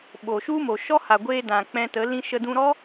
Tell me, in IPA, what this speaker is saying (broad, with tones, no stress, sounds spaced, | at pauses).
ɓ o˨ ʃ u˦ m o˨ ʃ ɔ˦ h a˨ ɡʷ eː˧ d ã˨ k͡p ɛ̃˧ t ə˨˦ l ĩ˧ ʃ ə˧ d ũ˧ ɾ ɔ˦